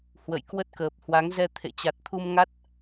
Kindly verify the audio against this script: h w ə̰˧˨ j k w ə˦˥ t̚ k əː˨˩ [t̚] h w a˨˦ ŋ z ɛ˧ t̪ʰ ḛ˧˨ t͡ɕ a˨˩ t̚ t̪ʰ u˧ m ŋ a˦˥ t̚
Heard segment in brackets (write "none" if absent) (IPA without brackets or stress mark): p̚